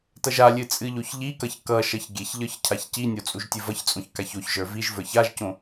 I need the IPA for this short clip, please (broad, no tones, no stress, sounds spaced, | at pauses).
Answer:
t ʌ ʒ a lʲ ɨ t͡sʼ ɨ ʎ o ç ʎ i k ʌ ç k ʌ ʃ ʌ ç ɡʲ e ç ʎ ə˞ ç cʰ a ç c i nʲ o t͡sʼ u ʒ tʲ ɨ v ʌ ç t͡sʼ õ ç k a ç o ç ʒ ə˞ v i ʒ v ə˞ ç a ʒ c õ